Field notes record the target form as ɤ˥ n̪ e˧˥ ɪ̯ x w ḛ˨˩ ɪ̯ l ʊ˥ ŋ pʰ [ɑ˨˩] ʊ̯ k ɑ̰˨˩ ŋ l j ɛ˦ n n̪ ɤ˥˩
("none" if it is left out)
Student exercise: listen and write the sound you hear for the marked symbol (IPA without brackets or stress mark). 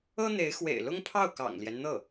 ɑ˥˩